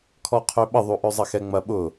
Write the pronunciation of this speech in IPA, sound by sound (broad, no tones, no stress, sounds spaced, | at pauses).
kʰ ɔ qʰ ø ɓ ə ðˤ u ʔ ø zˤ ɐ x ɛ ŋ͡m ɐ ɓ ʊ